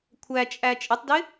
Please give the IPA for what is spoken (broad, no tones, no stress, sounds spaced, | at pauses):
kʷʰ æ t͡ʃʼ æ t͡ʃʼ ɪ tˤ d ɪ